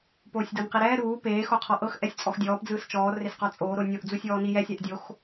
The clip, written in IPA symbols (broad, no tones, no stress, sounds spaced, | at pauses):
p oː sʲ d ɤ n q i ɾ ɛː ɾ uː p eː x o qʰ ɔ ʔ ɤ x ʔ ɛ sʲ t͡sʼ ɔ x dʲ ɔː p d͡z ɯː s t͡ʃ ɔː r e s q ɔ t͡sʼ oː ɾ o nʲ o ʔ d͡z u sʲ ɔː n i j ɛ sʲ a ʔ dʲ o x